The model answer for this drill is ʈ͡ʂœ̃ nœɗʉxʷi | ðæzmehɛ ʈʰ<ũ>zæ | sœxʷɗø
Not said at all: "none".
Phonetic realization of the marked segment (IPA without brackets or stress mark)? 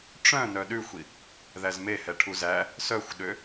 u